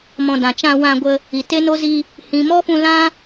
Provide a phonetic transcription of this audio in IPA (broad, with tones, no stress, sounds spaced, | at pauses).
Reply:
m ɔ̃˨ d ã˨ t͡ʃ ã˧ w ã˧ ɡʷ ə˧ | i˨ t e˦ n o˦ z i˧ | h ĩ˨ m ɔ˦ f ũ˧ l ã˦